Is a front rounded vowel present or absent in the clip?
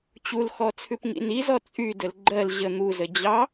present